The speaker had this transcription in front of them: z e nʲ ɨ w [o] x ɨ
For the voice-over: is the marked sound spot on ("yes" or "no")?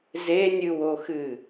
yes